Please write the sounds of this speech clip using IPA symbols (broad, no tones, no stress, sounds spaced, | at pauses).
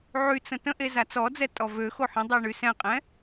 ʕ y t͡s ə̃ t ə̃ ʔ e z a t͡s ɔ d͡z ɛ tʼ ɔ v ø x o ħ ɛ̃ dˤ e ɳ y s ɛ̃ qʼ ɛ̃